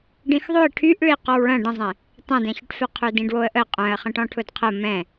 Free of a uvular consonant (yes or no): no